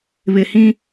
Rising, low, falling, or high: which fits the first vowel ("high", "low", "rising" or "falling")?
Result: low